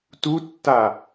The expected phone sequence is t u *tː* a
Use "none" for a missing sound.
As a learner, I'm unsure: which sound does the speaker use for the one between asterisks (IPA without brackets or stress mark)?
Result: tː